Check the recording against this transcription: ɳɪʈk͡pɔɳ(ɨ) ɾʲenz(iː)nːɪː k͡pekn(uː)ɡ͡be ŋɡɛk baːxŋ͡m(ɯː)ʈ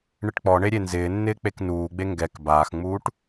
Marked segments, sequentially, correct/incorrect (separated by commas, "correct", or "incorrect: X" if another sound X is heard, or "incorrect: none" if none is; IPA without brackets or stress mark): incorrect: e, incorrect: ɪː, correct, incorrect: uː